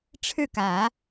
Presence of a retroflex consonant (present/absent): present